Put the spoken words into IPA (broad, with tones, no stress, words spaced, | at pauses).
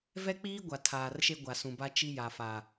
vɛ˦k͡piː˦ ɡʷa˨ tʰaː˨rʃe˦ ɡʷa˨sũ˨ba˦ t͡ʃi˦ja˨fa˨